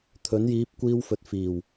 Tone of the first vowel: rising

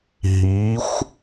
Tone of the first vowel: rising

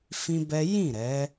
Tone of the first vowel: high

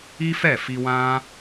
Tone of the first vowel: high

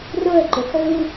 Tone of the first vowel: falling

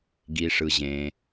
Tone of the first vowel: low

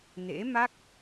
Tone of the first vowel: rising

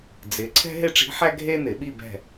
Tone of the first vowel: rising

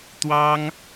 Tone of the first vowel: high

